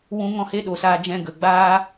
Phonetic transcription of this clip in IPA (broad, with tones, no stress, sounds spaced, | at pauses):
w ũ˧ ŋ ɔ̃˦˨ h e˦ ɗ o˨ s aː˧ d͡ʒ ɛ̃˧ ɡ ə˨ ɡ͡b aː˦